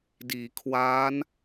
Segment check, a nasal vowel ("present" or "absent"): absent